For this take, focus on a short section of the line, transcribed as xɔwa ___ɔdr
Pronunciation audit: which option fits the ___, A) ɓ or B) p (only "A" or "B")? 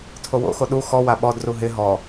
A